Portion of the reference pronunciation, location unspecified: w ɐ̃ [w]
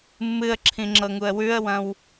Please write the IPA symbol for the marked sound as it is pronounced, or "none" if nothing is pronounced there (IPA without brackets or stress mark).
w